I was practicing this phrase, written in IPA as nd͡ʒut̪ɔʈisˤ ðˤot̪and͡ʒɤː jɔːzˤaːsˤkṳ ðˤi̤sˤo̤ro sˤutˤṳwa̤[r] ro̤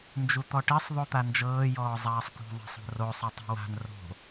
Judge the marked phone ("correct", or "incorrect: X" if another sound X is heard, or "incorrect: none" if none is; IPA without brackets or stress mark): incorrect: n